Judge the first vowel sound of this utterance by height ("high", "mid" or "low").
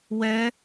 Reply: mid